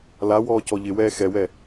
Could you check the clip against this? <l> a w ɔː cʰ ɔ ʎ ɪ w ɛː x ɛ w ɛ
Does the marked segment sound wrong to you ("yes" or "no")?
no